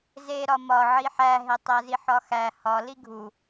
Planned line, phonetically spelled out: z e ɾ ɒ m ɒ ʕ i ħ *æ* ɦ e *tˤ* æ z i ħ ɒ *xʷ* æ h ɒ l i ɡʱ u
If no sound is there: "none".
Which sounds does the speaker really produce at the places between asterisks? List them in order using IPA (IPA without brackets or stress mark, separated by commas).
æ, tˤ, x